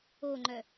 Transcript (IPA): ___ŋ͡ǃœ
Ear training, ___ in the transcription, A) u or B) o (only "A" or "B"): B